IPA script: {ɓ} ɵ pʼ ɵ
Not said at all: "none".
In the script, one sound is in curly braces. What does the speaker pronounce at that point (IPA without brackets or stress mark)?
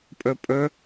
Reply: pʼ